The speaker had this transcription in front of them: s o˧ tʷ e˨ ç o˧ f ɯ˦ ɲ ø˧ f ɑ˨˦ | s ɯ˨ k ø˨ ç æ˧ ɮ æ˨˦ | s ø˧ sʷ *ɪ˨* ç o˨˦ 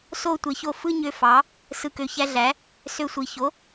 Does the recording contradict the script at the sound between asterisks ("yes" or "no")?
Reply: yes